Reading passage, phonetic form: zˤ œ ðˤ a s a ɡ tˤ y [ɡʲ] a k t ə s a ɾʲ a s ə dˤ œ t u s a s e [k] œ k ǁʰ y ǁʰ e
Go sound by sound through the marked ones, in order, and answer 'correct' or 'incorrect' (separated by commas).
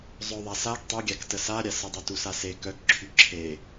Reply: correct, correct